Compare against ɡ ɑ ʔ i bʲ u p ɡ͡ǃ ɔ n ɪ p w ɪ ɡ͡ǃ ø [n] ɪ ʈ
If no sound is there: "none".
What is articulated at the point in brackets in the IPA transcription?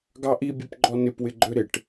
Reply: ɾ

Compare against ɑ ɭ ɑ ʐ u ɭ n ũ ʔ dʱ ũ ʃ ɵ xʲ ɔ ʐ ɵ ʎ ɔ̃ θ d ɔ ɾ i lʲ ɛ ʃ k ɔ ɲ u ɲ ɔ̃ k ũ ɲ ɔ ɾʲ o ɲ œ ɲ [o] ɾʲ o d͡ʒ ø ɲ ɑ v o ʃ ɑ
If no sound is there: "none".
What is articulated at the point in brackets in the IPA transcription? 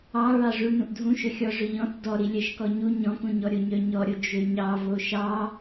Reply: ɔ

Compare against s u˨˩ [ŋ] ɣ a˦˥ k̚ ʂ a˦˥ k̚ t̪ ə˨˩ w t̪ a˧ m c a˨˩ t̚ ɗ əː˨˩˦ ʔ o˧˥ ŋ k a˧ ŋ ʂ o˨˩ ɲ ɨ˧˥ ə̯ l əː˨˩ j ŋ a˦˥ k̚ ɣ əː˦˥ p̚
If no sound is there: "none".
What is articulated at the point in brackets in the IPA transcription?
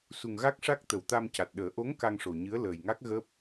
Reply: ŋ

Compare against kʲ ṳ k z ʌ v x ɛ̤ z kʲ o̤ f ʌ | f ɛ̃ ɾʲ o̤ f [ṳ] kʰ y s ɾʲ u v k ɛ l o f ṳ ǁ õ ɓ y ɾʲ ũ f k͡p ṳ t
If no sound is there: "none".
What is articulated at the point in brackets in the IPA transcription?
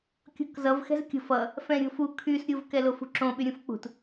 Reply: u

